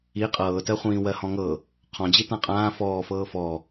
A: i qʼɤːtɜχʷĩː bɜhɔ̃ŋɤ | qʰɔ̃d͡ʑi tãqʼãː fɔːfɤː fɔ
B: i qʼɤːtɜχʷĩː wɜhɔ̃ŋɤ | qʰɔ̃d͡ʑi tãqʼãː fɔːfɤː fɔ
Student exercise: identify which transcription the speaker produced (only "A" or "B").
B